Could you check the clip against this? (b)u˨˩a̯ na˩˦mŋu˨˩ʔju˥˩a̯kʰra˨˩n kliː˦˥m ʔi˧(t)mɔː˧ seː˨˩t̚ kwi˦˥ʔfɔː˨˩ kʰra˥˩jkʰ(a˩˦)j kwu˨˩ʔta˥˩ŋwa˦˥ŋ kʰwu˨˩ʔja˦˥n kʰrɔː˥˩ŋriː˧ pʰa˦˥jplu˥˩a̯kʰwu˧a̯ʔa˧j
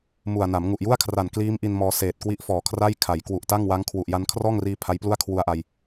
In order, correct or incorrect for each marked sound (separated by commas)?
incorrect, incorrect, correct